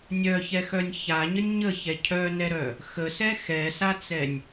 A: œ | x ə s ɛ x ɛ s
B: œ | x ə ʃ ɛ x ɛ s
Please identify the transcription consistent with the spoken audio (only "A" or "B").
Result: A